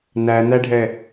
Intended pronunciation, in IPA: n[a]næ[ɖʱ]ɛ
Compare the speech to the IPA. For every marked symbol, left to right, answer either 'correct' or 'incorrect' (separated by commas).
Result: incorrect, correct